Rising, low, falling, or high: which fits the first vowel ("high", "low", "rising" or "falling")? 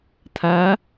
rising